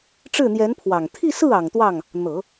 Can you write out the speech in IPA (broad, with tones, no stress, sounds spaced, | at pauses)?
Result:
ʈ͡ʂ ɻ̩˥˩ n̪ j ɛ˧˥ n pʰ w ɑ˨˩ ŋ t̪ʰ i˥˧ s ɹ̩˥˩ ɑ˨˩ ŋ t̪ w ɑ˥˩ ŋ | n̪ ɤ˨˩˦